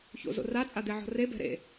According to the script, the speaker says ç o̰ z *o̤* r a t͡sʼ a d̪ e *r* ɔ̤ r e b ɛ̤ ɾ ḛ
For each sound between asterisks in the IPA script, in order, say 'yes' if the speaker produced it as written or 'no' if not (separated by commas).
no, no